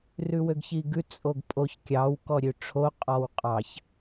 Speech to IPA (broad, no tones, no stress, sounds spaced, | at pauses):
r ʉ w ø ɡ ç i ɡ ʉ t͡sʼ o ɡ pʼ o ç kʲ ɑ w k ɔ ɾʲ ʉ ʈ͡ʂʰ o qʼ ɔ w qʼ ɑ ç